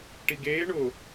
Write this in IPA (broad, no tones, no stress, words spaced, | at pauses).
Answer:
ʈiɡeːɳʊː